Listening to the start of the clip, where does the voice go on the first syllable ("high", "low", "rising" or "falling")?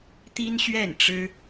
high